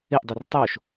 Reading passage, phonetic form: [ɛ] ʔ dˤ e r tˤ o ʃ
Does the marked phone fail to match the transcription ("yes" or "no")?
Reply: yes